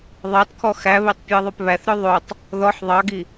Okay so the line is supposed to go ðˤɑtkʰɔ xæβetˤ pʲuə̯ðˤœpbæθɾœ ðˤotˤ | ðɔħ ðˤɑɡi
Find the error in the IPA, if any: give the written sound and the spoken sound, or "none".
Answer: b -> β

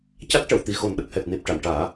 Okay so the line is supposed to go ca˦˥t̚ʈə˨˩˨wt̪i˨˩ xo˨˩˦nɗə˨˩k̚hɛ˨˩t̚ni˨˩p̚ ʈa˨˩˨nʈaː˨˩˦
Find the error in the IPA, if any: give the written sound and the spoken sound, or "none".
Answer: none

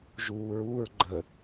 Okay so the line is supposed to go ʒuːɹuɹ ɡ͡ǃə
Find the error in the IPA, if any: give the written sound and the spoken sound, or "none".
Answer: none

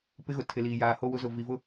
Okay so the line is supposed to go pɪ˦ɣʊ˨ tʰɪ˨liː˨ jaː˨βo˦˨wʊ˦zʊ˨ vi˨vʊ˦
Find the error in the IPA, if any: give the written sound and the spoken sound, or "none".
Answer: β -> h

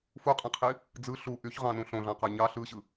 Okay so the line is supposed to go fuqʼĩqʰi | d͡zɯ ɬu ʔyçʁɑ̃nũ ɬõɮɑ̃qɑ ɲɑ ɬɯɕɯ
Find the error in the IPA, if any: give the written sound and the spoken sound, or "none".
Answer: none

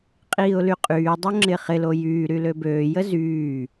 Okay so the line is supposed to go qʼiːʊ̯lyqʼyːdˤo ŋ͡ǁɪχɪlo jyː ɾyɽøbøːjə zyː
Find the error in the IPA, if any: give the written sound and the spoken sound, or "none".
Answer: ɽ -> l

